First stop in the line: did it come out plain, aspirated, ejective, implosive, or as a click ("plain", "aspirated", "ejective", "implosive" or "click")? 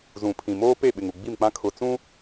aspirated